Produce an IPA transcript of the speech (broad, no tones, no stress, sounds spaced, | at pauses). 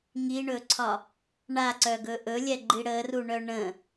ŋ i ɳ ɵ ǀʰ ɒ | ɳ a ǀ œ ɡ ɵ ʔ ɵ lʲ ɛ ɡ͡ǃ i ɽ ə r u ɳ œ ɳ ə̃